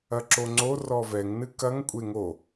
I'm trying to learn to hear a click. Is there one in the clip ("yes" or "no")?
yes